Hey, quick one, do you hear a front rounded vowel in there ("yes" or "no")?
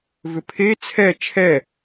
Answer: yes